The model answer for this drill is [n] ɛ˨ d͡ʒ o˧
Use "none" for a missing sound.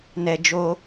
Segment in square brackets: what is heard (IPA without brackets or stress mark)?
n